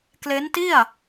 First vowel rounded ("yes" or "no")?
no